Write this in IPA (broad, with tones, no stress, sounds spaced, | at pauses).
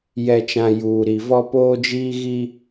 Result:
j ɛ˨ t͡ʃ ã˨ j uː˨ ɾ i˨ v ɔ˦ p oː˦ d͡ʒ iː˦ ɣ iː˦